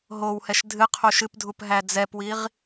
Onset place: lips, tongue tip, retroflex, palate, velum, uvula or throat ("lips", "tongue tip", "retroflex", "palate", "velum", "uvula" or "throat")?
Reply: throat